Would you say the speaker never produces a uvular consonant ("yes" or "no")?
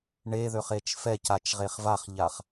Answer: no